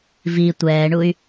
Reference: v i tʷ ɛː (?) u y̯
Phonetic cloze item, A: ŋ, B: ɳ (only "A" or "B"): B